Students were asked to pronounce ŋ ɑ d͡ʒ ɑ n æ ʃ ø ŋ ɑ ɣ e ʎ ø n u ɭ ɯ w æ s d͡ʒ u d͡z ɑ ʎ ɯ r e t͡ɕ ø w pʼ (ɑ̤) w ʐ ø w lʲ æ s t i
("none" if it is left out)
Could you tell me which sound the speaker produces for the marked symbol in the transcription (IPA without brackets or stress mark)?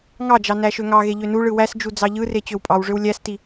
ɑ